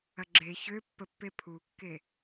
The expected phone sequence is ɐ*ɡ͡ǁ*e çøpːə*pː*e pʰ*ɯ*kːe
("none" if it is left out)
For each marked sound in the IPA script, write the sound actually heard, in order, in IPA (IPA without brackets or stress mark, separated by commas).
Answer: ɡ͡ǁ, pː, u